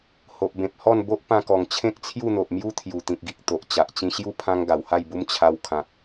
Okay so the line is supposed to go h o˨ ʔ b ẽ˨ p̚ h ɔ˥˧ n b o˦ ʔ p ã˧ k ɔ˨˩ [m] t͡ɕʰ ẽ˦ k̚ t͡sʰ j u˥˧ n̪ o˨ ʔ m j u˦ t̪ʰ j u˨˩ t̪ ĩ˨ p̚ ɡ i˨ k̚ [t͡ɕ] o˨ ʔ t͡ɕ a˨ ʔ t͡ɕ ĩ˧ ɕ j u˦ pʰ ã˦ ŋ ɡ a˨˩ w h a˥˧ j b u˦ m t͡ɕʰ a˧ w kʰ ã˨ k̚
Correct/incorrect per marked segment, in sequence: incorrect: ŋ, incorrect: t̪

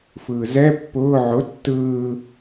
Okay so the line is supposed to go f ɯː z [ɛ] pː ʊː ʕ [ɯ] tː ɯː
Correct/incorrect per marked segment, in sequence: correct, incorrect: ʊ

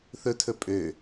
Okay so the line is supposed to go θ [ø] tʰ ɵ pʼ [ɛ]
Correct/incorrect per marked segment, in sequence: incorrect: ɵ, incorrect: ø

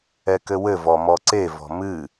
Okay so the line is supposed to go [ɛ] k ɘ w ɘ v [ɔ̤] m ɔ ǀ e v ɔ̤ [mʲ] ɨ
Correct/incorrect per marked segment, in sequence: correct, incorrect: ɔ, incorrect: m

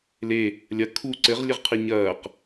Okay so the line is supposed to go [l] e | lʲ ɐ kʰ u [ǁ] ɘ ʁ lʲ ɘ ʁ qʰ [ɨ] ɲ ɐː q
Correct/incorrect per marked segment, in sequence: correct, incorrect: ǀ, correct

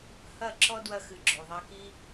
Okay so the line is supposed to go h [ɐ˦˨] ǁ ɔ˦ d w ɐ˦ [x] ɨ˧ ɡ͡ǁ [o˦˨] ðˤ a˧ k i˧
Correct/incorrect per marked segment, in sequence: correct, correct, incorrect: o˨

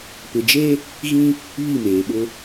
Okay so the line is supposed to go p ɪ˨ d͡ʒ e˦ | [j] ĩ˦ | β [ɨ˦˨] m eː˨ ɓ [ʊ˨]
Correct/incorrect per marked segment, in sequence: incorrect: ɣ, incorrect: i˦˨, incorrect: ʊ˦

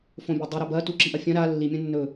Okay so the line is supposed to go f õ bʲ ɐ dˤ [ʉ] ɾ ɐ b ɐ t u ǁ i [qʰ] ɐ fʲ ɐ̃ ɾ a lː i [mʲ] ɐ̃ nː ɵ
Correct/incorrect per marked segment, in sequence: correct, incorrect: ʔ, correct

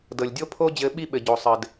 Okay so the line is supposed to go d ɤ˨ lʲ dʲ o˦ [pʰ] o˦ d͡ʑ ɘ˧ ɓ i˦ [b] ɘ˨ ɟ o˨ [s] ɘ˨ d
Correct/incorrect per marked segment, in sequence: correct, incorrect: ɓ, incorrect: sˤ

